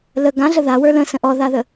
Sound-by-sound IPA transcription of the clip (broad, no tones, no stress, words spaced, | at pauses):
lə ɡãɮə ðawə˞ lə̃sə̃ ʔɔðaðə